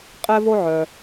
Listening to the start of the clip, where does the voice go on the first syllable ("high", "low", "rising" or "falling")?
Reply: high